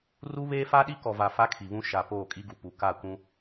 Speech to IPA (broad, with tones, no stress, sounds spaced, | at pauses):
r u˦ β eː˦ f a˦ ɗ i˦ k ɔ˨ v a˨ f a˦ kʰ i˨ β ũ˦ ʃ a˨ p oː˦˨ kʼ i˦ ɡ u˨ p u˨ k a˦˨ kʷ ũ˦